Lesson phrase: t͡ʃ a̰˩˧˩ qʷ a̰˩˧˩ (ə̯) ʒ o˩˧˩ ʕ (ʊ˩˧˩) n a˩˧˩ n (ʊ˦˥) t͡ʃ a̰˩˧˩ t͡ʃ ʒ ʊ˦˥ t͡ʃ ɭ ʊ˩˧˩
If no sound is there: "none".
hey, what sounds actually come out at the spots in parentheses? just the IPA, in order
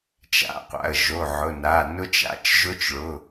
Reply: ə̯, ʊ˩˧˩, ʊ˦˥

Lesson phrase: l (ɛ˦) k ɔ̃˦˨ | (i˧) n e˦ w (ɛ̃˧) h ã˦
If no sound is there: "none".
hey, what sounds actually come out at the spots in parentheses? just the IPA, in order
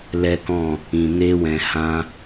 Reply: ɛ˦, ĩ˧, ɛ̃˧

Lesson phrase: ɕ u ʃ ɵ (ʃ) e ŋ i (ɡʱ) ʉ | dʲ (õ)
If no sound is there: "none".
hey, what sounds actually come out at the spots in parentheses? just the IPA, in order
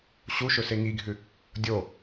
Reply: s, ɡʱ, o

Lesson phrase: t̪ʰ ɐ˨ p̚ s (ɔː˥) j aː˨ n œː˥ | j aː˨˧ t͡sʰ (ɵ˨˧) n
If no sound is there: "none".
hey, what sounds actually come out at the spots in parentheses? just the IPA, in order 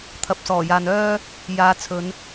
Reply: ɔː˨˩, ɵ˨˧

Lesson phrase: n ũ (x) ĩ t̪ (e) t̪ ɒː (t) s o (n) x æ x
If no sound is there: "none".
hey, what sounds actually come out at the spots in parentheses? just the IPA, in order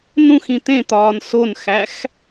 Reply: x, ẽ, n, n

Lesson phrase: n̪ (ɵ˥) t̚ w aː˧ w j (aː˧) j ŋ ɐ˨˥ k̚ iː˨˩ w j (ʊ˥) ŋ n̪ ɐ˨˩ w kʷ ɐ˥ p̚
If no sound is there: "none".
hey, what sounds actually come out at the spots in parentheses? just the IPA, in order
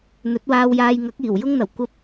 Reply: ɵ˨˥, aː˧, ʊ˥

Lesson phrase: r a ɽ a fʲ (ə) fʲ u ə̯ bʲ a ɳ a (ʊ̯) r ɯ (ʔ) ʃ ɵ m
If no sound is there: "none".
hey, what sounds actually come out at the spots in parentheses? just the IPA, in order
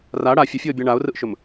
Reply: ə, ʊ̯, ʔ

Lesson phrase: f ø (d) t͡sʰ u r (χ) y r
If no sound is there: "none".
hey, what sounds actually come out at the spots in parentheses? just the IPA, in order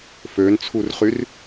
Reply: n, χ

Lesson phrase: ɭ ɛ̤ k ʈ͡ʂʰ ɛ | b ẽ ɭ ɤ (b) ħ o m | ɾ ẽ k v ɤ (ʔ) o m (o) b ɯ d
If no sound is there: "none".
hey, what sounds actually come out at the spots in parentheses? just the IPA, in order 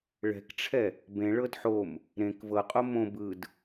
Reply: d, qʼ, õ

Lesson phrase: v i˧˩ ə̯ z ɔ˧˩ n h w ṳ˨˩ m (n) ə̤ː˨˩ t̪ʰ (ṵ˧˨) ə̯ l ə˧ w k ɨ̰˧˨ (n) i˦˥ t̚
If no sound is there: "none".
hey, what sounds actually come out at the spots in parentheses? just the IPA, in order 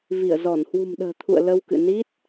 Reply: ɗ, ṵ˧˨, n

